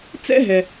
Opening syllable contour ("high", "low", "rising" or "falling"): high